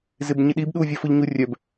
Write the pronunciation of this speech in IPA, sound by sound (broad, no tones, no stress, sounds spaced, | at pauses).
z ɪ b ɲ ɪ ɗ i b ɗ u vʲ œ f ʊ ʎ ɲ u rʲ œ b